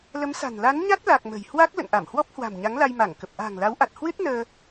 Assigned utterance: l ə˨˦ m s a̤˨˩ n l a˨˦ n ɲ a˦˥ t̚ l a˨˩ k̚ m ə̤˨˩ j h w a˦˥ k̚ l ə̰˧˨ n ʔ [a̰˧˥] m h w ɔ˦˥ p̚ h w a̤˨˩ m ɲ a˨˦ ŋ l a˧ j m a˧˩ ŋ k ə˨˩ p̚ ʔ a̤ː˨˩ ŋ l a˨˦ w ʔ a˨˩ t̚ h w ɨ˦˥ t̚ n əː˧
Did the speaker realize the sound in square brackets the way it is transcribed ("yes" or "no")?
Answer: no